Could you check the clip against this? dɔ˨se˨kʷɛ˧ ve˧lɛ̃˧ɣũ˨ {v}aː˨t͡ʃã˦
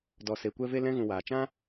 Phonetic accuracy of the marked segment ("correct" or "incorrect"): incorrect